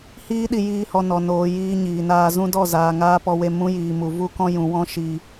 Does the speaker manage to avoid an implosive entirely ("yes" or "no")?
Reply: no